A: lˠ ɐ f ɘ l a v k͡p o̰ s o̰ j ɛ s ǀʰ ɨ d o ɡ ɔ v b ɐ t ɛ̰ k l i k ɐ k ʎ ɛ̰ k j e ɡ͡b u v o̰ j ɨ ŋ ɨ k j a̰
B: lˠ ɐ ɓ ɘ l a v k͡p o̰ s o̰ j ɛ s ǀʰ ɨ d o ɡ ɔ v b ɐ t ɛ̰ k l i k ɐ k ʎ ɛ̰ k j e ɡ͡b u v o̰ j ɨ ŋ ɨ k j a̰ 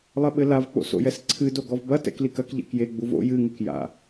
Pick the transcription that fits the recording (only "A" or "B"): B